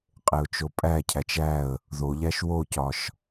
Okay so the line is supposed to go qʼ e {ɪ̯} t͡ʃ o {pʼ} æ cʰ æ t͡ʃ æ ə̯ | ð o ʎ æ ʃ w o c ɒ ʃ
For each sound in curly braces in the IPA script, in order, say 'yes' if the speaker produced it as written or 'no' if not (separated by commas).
no, yes